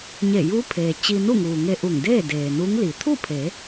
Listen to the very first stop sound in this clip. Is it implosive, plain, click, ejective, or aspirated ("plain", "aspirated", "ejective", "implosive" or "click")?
aspirated